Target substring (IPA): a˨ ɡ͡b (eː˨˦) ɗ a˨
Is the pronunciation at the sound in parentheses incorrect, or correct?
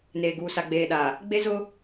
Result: incorrect